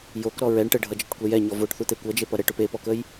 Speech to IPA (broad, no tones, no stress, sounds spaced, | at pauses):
j o k ɾ ɔ ɹ ɛ ɳ ʈ ə ɖʱ ʌ d͡ʒ ʌ ʈ kʷ ɛ j ɛ ɲ ɔ v o ʈ θ u t̪ e kʷ ʌ d͡ʒ e p ʌ ɾ ə ʈ o p e p ɔ k ə j